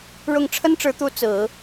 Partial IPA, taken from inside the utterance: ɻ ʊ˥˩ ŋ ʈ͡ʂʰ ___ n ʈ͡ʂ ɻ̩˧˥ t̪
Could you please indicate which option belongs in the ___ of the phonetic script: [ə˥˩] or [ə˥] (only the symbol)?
ə˥